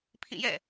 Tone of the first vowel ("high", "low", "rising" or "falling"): falling